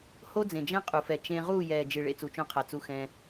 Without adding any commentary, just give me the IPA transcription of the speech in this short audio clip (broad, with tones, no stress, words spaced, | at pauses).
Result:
ho˦d͡zẽ˨d͡ʒɛ̃˦ qʼu˨fɛ˨ t͡ʃẽ˧ ʁuː˦˨jɛː˨d͡ʒɨ˨ ɭḛ˧t͡su˨t͡ʃõ˧qʰa˨ t͡su˧xɛ̃˧